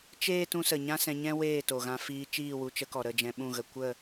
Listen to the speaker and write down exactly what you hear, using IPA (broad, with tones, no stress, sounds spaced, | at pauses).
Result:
t͡ʃ eː˦ t ũ˧ s ə˨ ɲ ã˦ s ɛ̃˧ ɲ ɛ̃˦ w eː˦˨ t o˨ ɣ ã˧ f iː˧ t͡ʃ iː˦˨ w u˧ t͡ʃ ə˧ k ɔ˨ ɾ ə˦˨ d͡ʒ ɛ̃˧ ɓ ũ˦˨ ɣ ə˧ kʷ ə˦˨